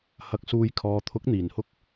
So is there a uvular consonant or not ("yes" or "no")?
no